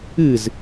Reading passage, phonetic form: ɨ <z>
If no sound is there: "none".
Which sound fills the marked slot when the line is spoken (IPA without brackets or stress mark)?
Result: z